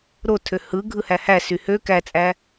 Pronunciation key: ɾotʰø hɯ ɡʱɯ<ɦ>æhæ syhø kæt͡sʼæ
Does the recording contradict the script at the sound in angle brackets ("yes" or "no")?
yes